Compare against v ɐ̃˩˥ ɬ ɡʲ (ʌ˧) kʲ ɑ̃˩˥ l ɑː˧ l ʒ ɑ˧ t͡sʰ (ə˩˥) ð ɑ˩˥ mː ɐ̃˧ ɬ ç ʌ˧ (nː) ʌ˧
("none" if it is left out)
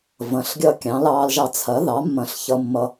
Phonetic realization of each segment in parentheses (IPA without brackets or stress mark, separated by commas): ʌ˧, ɐ˩˥, mː